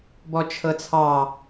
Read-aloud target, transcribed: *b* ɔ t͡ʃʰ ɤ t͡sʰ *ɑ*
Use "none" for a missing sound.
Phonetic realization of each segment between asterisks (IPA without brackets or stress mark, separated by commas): b, ɑ